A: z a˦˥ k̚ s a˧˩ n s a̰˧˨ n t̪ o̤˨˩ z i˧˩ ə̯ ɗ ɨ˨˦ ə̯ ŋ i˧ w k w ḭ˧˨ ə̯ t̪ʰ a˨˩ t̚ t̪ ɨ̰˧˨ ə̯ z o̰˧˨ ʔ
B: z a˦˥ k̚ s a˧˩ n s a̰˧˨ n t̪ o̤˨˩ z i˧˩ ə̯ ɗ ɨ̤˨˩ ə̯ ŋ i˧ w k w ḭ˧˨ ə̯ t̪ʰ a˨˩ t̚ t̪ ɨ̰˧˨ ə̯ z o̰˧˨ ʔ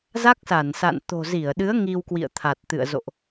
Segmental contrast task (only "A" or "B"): A